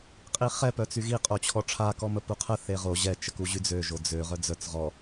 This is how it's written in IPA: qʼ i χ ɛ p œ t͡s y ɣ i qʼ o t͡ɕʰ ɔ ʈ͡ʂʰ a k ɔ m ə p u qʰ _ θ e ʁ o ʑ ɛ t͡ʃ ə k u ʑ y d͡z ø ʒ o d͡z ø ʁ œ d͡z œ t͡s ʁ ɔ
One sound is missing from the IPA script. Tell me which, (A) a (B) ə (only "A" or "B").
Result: B